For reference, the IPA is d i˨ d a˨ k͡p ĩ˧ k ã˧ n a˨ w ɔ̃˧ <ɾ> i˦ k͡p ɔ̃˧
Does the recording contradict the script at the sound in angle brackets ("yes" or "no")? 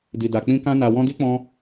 yes